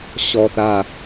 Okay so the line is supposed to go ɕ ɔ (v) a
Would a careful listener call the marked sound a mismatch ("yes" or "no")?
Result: yes